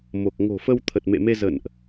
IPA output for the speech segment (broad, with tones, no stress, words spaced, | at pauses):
mo˨˩k̚ ŋo̤˨˩fə˧w t̪ʰə˨˩t̚mḛ˧˨me˧ zə̰˧˨nʔ